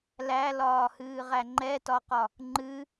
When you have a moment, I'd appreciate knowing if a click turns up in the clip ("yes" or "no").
yes